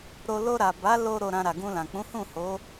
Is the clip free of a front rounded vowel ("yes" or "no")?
yes